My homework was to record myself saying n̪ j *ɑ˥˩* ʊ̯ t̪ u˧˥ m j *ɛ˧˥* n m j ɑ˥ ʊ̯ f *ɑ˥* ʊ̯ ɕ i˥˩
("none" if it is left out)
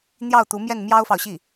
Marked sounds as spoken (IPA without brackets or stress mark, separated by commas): ɑ˥˩, ɛ˥˩, ɑ˨